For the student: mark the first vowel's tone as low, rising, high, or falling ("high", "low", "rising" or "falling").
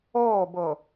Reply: falling